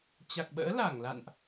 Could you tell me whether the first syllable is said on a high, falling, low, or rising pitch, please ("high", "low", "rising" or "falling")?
low